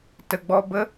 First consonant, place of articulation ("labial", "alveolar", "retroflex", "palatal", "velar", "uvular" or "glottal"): alveolar